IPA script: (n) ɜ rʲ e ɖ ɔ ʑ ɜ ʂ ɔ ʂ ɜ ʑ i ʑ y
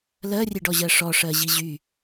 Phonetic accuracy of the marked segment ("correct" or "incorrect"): incorrect